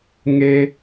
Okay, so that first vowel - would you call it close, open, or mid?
mid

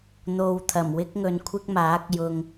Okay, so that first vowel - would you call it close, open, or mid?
mid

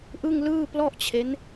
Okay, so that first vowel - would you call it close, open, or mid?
close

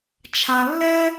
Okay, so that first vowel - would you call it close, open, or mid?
open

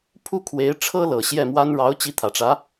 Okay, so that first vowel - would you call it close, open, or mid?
close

